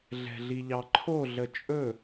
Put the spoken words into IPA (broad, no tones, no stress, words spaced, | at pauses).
ɮɛ̤ɮiʎɑǃʰo ɮət͡ʃʼɵ